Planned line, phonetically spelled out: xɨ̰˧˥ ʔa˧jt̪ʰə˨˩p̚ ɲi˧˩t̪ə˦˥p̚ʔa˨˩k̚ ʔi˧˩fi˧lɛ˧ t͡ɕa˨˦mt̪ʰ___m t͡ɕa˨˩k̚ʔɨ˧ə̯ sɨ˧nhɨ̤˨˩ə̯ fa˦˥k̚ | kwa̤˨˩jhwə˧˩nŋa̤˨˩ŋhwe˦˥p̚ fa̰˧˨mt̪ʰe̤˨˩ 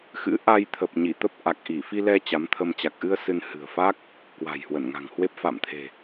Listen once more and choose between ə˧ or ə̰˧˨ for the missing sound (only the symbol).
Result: ə˧